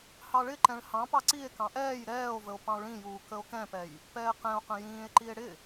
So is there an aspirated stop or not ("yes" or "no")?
no